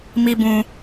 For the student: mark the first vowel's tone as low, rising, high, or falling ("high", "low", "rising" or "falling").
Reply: high